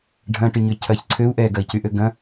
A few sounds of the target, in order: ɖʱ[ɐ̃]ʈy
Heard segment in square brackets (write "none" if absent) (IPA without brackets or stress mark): ɐ̃